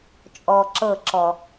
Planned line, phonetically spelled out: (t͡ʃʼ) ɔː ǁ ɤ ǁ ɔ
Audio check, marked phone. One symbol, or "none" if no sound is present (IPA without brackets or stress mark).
t͡ʃʼ